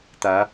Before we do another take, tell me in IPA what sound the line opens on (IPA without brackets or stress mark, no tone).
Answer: t̪